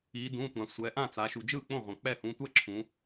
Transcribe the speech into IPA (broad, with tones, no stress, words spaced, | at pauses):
iː˩˧dũ˩˧˩tʷã˩ sʷɛ˩˧ ʔã˥˩t͡sa˩˧ ʃu˩d͡ʒɯː˥˩k͡põ˥˩ ʁʷã˩k͡pɛ˥˩hũ˩˧˩ tʷɛ˥˩ ǁʰũ˩˧